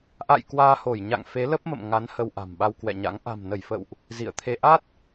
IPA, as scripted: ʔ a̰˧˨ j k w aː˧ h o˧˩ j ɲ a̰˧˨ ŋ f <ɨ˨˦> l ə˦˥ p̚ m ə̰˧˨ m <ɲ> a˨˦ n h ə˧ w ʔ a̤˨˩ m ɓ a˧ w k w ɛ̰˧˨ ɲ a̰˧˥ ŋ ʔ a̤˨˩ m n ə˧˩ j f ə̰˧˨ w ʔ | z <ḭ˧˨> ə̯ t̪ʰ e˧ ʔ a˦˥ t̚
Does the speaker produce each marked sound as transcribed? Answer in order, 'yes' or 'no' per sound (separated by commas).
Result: no, no, yes